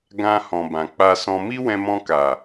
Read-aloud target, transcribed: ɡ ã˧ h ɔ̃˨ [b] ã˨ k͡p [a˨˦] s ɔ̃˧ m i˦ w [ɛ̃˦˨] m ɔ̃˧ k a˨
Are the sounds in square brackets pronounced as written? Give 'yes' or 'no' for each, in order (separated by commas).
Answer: yes, no, no